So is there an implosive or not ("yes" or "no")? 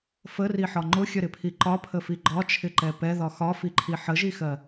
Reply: no